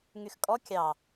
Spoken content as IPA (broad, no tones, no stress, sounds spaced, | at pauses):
ŋ y x kʼ ɔ kʲ ɑ